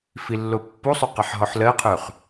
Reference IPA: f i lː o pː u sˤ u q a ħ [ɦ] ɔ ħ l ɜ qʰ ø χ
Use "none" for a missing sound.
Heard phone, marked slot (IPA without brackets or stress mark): ɦ